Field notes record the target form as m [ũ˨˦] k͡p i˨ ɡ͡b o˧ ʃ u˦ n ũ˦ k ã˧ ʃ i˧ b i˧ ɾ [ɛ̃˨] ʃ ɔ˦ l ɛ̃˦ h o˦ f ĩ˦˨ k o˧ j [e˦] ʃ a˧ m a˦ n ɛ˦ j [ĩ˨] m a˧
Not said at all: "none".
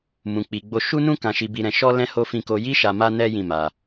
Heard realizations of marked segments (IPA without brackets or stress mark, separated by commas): ũ˨, ɛ̃˧, i˦, ĩ˦˨